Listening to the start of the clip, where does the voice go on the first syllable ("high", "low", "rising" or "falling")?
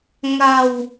low